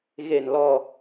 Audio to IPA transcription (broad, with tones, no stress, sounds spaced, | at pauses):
ɣ e˨˩ n l ɔ˨˩